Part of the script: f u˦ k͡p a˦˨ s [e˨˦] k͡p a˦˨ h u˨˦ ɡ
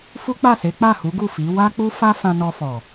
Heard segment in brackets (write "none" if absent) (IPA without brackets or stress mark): e˨˦